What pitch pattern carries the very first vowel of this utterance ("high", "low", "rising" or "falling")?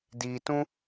low